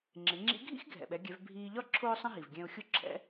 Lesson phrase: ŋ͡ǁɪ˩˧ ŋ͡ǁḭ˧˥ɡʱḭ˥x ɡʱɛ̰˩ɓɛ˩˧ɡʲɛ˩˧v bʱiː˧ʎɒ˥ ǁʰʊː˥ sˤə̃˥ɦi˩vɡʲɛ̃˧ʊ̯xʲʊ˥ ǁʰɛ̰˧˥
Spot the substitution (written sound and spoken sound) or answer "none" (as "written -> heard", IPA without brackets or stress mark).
none